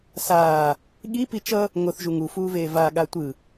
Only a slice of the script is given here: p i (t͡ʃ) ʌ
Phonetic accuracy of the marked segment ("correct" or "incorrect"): correct